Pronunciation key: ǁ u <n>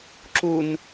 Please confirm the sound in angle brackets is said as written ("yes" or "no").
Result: yes